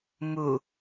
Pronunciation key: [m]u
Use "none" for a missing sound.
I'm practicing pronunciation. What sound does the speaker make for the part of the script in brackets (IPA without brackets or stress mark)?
m